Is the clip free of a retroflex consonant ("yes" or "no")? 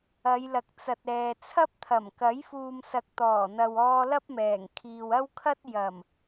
yes